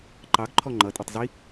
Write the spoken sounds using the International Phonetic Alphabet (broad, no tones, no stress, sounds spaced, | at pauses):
ǃ ɑ ɡ ǃʰ ɔ ŋ͡ǃ ʌ tʼ ʌ tˤ z i